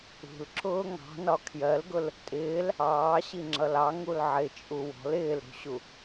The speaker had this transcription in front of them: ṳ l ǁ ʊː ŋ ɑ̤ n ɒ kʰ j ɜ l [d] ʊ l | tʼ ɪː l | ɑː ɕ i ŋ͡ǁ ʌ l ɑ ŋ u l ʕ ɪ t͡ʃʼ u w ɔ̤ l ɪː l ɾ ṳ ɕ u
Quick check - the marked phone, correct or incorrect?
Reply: incorrect